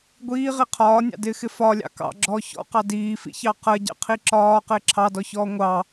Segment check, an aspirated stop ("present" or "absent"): present